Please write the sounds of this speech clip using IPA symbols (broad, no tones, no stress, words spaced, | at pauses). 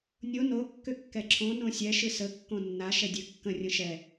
nʲo no kːʏkːɛǁʰõ nõsʲɛ ʃɨsə kːõnːa ʃɛdʲɨ kːə̃ rʲə̃ʃɛ